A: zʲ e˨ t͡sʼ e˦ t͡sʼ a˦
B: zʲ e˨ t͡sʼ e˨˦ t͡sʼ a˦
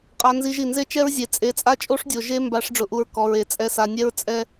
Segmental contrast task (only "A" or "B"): B